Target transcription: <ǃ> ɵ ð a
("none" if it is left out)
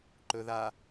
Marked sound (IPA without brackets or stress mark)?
ǃ